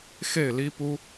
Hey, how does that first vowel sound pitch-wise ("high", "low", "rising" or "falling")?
falling